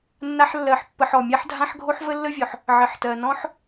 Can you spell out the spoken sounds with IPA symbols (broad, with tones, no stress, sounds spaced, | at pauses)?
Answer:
nː a˥ ħ lː ɜ˧ ħ pː ə˧ ħ ɔ˩ mʲ a˥ ħ dʱ ã˥ ħ ɡʱ o˥ ħ v ə˥ lː ə˥ vʲ ɔ˩ ħ | ʕ ə˩ ħ t ɜ˩ n ɔ̃˥ ħ